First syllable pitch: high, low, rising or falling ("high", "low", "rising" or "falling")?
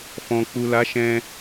low